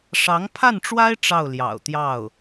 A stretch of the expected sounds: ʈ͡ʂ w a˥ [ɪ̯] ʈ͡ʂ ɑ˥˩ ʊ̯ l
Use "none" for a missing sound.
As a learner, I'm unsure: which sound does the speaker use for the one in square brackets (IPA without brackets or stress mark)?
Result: ɪ̯